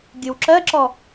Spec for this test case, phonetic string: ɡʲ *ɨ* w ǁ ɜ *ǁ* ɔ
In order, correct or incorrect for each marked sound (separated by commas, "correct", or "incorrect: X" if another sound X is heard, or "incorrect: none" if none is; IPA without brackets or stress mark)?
correct, correct